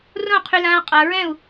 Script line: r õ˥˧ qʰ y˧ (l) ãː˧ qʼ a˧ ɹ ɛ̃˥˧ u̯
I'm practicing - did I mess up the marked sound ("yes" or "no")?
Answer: no